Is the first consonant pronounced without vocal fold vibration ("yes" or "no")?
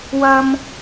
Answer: no